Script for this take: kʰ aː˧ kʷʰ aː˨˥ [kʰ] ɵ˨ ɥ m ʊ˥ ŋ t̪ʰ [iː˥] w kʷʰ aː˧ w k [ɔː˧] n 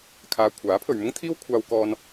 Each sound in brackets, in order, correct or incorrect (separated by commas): incorrect, correct, correct